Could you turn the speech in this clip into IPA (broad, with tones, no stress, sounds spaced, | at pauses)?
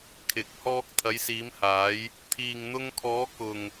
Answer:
kʰ ɪ˨ k̚ h ɔː˧ k̚ t̪ʰ ɐ˨˧ j s iː˨˧ m h aː˨˧ j | t̪ʰ iː˨ ŋ n̪ ʊ˧ ŋ kʰ ɔː˨˧ k ʊ˨ ŋ